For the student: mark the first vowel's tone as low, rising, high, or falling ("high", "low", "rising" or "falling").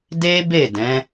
high